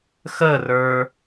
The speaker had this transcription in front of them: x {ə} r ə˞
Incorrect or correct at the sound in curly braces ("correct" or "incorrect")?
correct